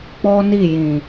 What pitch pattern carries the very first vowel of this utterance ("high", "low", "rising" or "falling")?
high